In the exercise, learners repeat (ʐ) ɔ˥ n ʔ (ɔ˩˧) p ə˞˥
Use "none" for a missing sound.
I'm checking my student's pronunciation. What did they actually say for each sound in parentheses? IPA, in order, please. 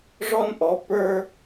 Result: ʐ, ɔ˧˥

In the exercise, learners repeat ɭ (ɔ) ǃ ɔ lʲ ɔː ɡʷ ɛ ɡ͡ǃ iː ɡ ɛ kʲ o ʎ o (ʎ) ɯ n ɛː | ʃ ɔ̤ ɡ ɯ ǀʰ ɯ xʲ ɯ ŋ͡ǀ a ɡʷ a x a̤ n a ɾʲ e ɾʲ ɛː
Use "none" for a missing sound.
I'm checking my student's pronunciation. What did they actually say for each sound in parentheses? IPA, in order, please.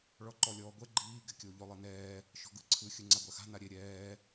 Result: ɔ, lˠ

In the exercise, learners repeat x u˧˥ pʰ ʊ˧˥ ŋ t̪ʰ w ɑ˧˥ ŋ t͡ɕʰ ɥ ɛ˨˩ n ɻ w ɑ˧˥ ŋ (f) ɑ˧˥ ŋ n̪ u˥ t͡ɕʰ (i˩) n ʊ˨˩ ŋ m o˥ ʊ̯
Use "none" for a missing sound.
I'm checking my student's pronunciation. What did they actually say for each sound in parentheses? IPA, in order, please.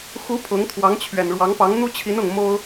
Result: p, i˧˥

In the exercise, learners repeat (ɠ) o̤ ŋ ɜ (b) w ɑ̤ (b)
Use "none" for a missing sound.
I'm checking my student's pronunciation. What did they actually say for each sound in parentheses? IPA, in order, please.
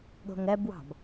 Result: ɠ, b, b

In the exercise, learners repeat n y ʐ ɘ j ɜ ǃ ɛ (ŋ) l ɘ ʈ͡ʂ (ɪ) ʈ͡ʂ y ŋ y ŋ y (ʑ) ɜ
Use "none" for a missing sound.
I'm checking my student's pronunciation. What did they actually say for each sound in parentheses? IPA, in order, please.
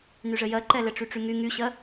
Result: none, y, ɕ

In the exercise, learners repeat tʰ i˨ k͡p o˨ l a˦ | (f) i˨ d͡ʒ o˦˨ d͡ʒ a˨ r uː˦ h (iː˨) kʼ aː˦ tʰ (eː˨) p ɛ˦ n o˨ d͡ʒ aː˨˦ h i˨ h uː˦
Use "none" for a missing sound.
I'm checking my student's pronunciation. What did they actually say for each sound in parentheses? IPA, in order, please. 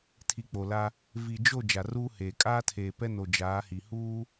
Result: v, eː˨, eː˨

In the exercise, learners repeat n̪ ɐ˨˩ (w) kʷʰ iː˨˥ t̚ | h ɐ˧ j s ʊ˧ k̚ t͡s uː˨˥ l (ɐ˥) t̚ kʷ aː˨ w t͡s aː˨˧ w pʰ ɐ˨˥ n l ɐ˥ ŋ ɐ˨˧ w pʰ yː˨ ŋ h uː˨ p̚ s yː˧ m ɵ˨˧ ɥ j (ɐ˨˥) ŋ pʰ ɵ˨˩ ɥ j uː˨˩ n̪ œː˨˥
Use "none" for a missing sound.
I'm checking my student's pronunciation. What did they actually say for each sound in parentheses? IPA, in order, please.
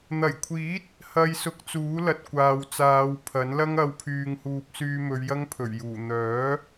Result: j, ɐ˨, ɐ˥

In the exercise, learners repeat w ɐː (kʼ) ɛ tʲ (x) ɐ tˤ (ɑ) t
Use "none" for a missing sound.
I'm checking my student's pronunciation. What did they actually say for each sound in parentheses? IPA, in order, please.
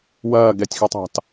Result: ɡ, x, ɑ̤

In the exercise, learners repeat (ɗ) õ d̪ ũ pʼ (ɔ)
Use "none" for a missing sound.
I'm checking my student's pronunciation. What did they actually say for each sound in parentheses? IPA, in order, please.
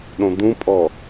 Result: ɗ, ɔ

